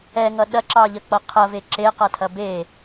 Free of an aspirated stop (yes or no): no